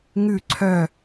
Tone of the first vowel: falling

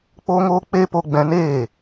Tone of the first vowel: high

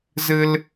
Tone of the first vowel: high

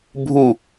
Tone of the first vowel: falling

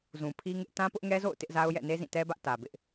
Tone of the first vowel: low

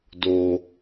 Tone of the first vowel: low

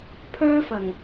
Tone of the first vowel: high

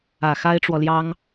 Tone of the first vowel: low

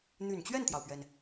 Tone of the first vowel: low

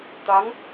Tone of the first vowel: rising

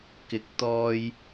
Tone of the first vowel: rising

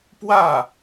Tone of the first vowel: falling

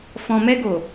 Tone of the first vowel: low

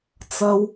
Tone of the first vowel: high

